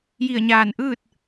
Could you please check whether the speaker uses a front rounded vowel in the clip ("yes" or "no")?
no